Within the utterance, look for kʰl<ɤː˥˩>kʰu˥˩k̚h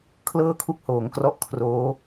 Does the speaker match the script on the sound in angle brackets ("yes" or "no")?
yes